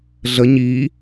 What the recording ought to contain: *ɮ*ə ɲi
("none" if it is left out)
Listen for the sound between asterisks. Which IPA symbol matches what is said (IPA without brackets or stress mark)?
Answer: ɮ